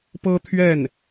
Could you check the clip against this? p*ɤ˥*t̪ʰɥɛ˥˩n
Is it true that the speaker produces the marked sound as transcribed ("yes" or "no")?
yes